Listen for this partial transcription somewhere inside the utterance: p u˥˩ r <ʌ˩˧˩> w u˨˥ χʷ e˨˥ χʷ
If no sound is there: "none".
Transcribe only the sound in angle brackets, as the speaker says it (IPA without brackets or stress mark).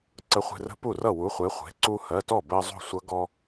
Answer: ʌ˥˩